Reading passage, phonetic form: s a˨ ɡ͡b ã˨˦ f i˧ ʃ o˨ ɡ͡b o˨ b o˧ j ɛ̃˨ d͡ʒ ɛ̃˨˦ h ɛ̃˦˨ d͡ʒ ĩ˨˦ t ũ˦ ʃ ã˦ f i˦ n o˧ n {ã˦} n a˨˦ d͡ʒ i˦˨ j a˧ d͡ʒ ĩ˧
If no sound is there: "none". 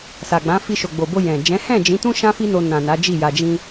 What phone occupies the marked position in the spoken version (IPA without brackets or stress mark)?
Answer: ã˨